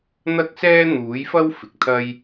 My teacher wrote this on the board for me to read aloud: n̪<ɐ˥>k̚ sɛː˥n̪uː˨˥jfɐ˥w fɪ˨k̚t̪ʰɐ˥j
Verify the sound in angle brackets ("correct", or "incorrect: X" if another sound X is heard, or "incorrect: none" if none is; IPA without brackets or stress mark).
correct